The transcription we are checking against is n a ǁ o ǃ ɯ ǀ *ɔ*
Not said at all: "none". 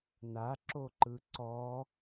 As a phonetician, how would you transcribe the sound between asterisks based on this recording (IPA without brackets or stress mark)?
ɔ